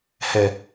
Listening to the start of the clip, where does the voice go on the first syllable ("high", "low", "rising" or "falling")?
low